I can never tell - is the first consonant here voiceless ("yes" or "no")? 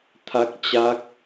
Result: yes